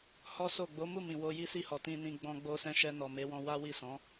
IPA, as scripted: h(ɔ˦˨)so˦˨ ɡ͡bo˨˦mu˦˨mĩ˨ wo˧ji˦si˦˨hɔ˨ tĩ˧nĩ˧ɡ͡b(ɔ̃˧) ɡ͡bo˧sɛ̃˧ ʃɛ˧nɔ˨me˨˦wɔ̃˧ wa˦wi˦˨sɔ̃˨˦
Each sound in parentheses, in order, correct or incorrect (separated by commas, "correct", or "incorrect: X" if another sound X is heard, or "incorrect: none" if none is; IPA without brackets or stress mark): incorrect: ɔ˦, correct